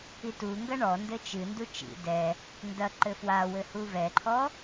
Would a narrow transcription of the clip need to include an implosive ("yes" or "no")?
no